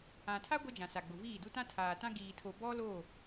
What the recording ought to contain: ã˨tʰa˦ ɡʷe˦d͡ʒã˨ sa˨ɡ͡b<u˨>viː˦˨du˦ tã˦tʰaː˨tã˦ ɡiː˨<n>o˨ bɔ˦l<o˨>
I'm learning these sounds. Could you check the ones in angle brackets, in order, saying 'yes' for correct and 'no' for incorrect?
no, no, no

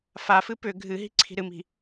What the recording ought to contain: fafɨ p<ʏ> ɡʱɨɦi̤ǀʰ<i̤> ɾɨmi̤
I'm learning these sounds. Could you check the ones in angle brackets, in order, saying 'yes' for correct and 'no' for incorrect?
yes, yes

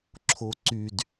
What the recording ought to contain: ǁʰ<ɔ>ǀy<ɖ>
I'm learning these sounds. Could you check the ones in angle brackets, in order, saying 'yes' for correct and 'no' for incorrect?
no, no

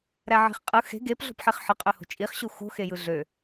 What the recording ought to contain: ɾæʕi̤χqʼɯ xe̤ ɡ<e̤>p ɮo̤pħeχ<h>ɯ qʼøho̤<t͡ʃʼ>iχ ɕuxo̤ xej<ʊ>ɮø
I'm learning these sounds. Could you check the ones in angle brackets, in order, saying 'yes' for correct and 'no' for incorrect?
no, no, yes, no

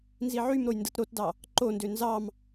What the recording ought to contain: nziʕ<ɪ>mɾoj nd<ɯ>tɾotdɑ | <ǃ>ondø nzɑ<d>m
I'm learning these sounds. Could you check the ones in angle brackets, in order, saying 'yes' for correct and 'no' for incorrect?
no, yes, yes, no

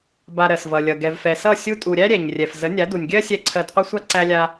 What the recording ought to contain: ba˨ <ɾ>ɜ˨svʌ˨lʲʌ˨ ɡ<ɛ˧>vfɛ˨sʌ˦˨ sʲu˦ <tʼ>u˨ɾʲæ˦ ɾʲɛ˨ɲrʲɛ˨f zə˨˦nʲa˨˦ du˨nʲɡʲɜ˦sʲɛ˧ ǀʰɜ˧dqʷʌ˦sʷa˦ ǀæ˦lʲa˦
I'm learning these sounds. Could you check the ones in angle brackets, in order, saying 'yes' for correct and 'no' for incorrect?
yes, no, yes

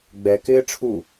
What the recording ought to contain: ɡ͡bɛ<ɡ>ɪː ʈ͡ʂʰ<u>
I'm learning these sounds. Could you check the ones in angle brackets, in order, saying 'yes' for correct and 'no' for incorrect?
no, yes

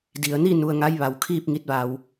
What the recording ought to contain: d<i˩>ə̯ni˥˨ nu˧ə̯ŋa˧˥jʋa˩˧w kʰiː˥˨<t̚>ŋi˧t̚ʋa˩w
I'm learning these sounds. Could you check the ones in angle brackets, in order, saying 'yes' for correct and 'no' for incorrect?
yes, no

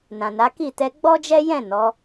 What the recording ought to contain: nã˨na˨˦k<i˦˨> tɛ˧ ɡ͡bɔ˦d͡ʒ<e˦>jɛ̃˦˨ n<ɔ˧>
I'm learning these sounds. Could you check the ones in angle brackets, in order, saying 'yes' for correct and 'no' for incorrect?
yes, no, no

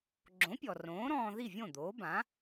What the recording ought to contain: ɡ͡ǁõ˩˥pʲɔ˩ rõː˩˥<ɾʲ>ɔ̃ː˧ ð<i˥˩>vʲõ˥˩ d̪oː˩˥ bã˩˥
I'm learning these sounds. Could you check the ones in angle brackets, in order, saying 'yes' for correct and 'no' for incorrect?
no, yes

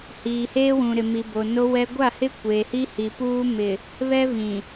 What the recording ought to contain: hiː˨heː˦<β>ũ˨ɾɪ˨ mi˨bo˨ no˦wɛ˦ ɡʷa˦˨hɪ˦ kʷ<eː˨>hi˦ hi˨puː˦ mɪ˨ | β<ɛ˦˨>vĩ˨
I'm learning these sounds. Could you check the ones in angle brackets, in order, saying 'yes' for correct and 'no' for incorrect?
no, yes, no

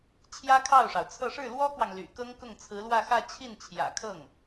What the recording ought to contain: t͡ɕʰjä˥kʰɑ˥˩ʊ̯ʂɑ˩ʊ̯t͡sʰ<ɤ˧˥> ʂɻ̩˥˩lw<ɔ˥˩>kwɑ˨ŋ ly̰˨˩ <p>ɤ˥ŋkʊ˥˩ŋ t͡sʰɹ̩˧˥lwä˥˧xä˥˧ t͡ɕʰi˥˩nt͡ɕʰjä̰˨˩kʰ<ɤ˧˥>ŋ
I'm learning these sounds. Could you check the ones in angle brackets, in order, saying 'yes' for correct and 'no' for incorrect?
no, no, no, no

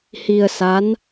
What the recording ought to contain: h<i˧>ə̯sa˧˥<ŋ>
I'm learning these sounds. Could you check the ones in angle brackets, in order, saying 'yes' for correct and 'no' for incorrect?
yes, no

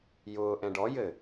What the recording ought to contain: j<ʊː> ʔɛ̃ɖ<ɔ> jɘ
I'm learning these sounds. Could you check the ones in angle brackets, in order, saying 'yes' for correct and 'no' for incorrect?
yes, yes

